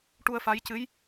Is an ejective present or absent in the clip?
absent